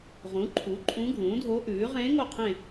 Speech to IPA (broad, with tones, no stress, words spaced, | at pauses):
ʁũ˩˥ǃʰu˩˥ ǃʼũ˧˥ɡʱũː˩˥dʱo˧˥ʔʉː˩˥ ʁẽː˧˥ŋo˦˨qʰẽ˦˨